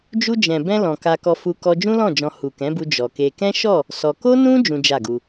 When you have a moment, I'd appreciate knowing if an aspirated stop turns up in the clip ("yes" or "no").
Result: no